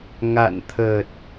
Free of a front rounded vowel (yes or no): yes